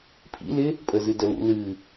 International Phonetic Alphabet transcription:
pʰ ḭ l ɪ | pʼ ə z ɨ d ə l ṵ l ɨ

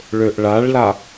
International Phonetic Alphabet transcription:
ɭ ø ʔ ɭ a ɭ l a

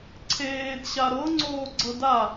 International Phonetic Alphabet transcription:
ǀʰ eː d ɕ a ɾ ɤ ŋ͡ǀ oː ɡ͡ǀ ɤ d a

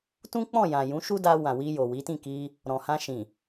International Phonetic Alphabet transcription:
t ũ˦ k͡p ɔ̃˦˨ j ã˨ j ũ˨˦ ʃ u˦ d a˧ w ã˨ w i˧ j o˨ w i˨˦ t ĩ˦˨ k i˧ | ɾ ɔ̃˨ h ã˧ ʃ ĩ˨

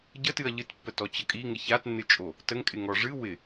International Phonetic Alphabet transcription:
ɟ ə t ɨ ɐ̯ ʎ ɨ t pː ə t ɔ t͡ɕ ə kʼ i ŋ ɪ ç a t nː ɨ t͡ʃʼ o | t ə ŋ kʼ ɪ ŋ ɔ ʐ ɨ w ɪ

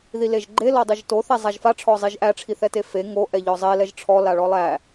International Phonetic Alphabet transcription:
ð i l e ʒ ɡ͡ǃ e l ɔ dˤ i ʒ t o θ ɛ zˤ a ʒ f a ʈ͡ʂʰ ɔ zˤ i ʒ ʔ æ ʈ͡ʂʰ i θ ɛ t e f e ŋ o ʔ ɛ ʎ ɔ zˤ e l ɛ ʒ ʈ͡ʂʰ ɔ l a ɭ ɔ lˠ æ

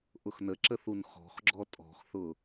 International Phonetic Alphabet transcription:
ʔ ʊ x n ə ǁ ə θ u n x ɔ̤ x ɡ͡ǁ ɔ tʼ ɔ̤ x θ ʊ

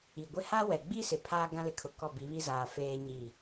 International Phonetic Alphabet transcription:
i˨ ɡʷ ɪ˦ h a˦ w ɛ˨ ɡ͡b i˦ s ɪ˨ pʰ aː˦ ɡ ã˦ l ɪ˨ kʰ ʊ˨ k ɔ˦˨ b i˨˦ β i˦ z aː˨ f eː˦ ɲ i˦˨

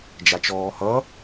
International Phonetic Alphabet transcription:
d͡ʒ a t͡ʃ ɔː h ʌ

